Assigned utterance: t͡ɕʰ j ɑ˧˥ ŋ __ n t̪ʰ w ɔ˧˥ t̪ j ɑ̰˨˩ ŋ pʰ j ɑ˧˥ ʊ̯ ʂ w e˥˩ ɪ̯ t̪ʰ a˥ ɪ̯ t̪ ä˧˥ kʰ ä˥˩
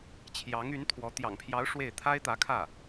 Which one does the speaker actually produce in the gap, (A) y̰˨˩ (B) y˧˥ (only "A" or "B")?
B